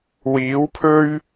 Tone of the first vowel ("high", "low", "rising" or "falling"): rising